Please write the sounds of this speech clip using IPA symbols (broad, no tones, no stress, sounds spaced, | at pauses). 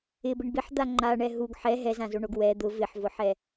ɪ b ɪ ɳ b ɪ ħ d̪ a ŋ͡ǃ a ɳ ɛ ɦ u ɡ ħ ɛ ɦ ɛ z ã z o ɳ o ɡ w ɛ d̪ ʊ v ɪ ħ v ʊ ħ ɛ